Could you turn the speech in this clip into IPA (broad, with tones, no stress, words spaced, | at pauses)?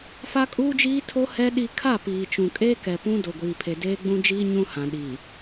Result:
fa˦kʼuː˦d͡ʒiː˦tʰo˦ hɛ˦ ɗi˦ kʰa˦˨piː˨t͡ʃũ˨ kʼeː˦kɛ˨pũ˦ do˨ɡʷiː˨pʰe˨ deː˦ɡ͡bũ˦d͡ʒiː˦ ɲũ˦hã˨ ɗi˨